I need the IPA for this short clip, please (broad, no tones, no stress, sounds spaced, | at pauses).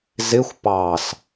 z ɪ xʷ p ɑ s